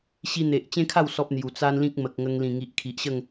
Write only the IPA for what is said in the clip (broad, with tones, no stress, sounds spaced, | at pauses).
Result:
ɕ i˧ n̪ e˨ ʔ t͡ɕ ẽ˦ kʰ a˥˧ w s ɔ˦ p̚ n̪ j u˨˩ t͡s a˦ n l ĩ˦ k̚ m ə˨ k̚ ŋ ə˧ ŋ l ĩ˨˩ ŋ i˨ ʔ kʰ i˨ ʔ ɕ ə˥˧ ŋ